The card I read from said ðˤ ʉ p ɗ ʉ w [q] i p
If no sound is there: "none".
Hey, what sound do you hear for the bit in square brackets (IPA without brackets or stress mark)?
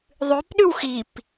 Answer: x